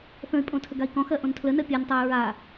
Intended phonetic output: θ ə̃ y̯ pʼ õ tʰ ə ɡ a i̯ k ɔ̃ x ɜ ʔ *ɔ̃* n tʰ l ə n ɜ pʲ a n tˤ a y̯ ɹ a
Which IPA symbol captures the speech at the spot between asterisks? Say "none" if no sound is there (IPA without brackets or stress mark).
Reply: õ